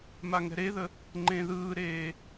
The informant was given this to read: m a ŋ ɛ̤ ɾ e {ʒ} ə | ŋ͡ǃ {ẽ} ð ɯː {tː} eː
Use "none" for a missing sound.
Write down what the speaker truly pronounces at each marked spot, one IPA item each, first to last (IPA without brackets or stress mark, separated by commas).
ð, ẽ, ɾ